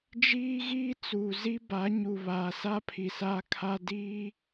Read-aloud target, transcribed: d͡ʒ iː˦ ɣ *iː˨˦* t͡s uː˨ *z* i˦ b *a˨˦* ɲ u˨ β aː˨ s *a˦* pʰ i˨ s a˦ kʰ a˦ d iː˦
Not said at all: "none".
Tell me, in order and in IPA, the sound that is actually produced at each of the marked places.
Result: iː˦, z, a˨˦, a˦

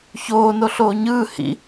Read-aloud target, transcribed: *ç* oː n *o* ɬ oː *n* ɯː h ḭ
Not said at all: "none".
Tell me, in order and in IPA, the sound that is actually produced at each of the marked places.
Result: ç, o, ɲ

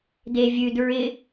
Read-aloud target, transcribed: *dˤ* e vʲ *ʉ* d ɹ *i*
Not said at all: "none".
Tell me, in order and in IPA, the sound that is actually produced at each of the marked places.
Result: d, ʉ, ɪ

